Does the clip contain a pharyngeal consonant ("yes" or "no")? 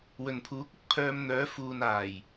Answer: no